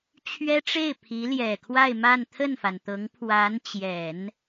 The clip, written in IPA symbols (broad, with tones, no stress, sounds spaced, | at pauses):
t͡ɕʰ ɥ ɛ˥ ʈ͡ʂ e˥˩ ɪ̯ pʰ i˧˥ l j ɛ˨˩ kʰ w a˥˧ ɪ̯ m a˥˧ n t̪ʰ ə˥˩ n f a˩ n t̪ ɤ˧˥ ŋ pʰ w a˧˥ n t͡ɕ j ɛ˨˩˦ n